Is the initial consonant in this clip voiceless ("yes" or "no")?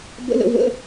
no